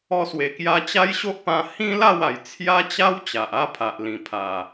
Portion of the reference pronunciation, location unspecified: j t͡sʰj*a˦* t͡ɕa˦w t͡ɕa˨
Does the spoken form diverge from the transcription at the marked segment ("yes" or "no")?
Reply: no